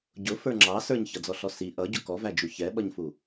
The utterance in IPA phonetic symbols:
ɟ ʊ f ə˞ ŋ͡ǁ ɑ s ə˞ ɲ ç ʌ d͡z ɔ ɬ ɔ s i ʔ ʌ ɟ ʊ k ɔ v æ d͡ʒ u ç ɛ ɓ ʌ ɲ f u

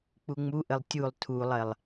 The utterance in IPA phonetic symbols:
k͡p u ŋ͡m u ʔ ə lˠ tʲ u lˠ tʰ u lˠ ɜ lˠ

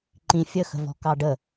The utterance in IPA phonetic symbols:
ǃ ĩ fʲ ə x ə̤ v ɔ̤ k ɑ ɖ ə

